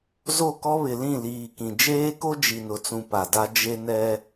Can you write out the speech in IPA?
z o˦˨ k ɔ˦ β ɪ˨ l ĩ˦˨ l iː˨ k ĩ˨ d͡ʒ eː˦ k o˦ d͡ʒ i˨ n ʊ˨ t͡s ũ˨ p a˨ d a˦ d͡ʒ e˦ n ɛ˦

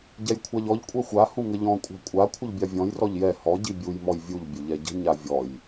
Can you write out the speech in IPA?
ɟ ɛ j kʷʰ a ʎ ɔ ʎ kʷʼ ɛ xʷ a h ũ ŋ ə ʎ ɔ̃ kʷʼ a̤ kʷʼ a kʷʰ ə ʎ bʲ a vʲ ɔ̃ j r ɔ ʎ j ɛ h ɔ ɟ i bʲ u j m ɔ j vʲ u ʎ bʲ ə ʎ ɛ ɟ ə̤ ɲ a vʲ ɔ j

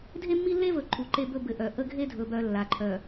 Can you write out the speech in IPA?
dʱ e˦ mː i˦ lː e˦ v ɵ˨ ǃʰ u˨ ǃ e˦ b ɵ˦ b ɘ˨ ʔ œ˨ ʔ ə˦ ɡʱ e˦ dʱ ɵ˨ b œ˨ lː a˨ ǃʰ œ˨

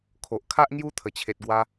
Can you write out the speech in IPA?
kʰ o˨ ʔ kʰ a˦ ʔ ŋ j u˦ t̪ʰ ə˨˩ t͡ɕʰ e˨ t̚ ɡ w a˧

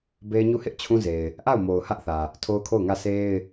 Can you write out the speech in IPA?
b e˦ ɪ̯ ɲ u˦˨ h ɪ˦ ʔ t͡ɕʰ ũ˦ z e˨ ɪ̯ | ʔ a˦˨ ʊ̯ m o˨ ʊ̯ h ä˦ ʔ θ ä˨ | tʰ o˦ ʊ̯ kʰ o˦˨ ʊ̯ ŋ ä˦˨ s e˦ ɪ̯

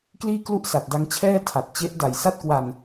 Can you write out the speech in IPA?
k l iː˥˩ k l u˥˩ ʔ s a˨˩ t̚ d a˧ ŋ t͡ɕʰ ɛː˥˩ tʰ a˨˩ t̚ t͡ɕ e˦˥ ʔ d a˨˩ j s a˥˩ t̚ k w a˧ n

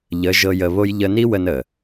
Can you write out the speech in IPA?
ʎ ə˨˦ ʒ ɤ˧ j ə˧ β o˦ j ʎ ə˧ n i˦ w ə˧ n ə˨

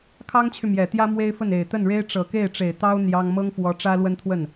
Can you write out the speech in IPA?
kʰ ɑ˥ ŋ t͡ɕʰ y˨ m j ɛ˨˩ t̪ j ä˥ m w e˥ ɪ̯ f ə˥˩ n e˨˩ ɪ̯ t̪ ə˥˩ n ɻ e˥ ɪ̯ ʈ͡ʂ ɤ˨˩ k e˥˩ ɪ̯ ʈ͡ʂ e˨˩ ɪ̯ t̪ ɑ˥ ʊ̯ n̪ j ɑ˥ ŋ m ɤ˥ ŋ f w ɔ˧˥ ʈ͡ʂ ä˥ l w ə˥ n t̪ʰ w ə˥˩ n

